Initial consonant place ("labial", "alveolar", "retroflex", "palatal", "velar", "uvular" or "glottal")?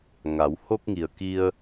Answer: velar